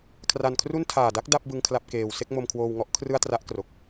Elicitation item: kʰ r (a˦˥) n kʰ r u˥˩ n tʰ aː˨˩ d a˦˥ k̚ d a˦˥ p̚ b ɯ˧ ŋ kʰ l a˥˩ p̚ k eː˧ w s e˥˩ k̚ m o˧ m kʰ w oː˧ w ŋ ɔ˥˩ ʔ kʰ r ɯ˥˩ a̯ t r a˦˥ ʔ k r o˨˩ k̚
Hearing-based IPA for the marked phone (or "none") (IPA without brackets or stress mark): a˧